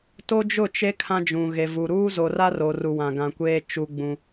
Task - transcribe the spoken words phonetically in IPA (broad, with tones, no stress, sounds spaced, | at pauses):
t o˦ d͡ʒ ʊ˦˨ t͡ʃ e˦ kʰ ã˦ d͡ʒ ũ˨ ɣ e˨ v u˨ ɾ uː˦ z o˨ r a˦ r o˨ r u˨ w ã˨ ɡ ã˨ kʷ eː˦ t͡ʃ u˦ ɡ͡b ũ˦